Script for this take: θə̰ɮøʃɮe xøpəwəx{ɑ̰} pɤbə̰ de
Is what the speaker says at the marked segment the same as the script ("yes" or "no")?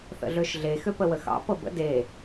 yes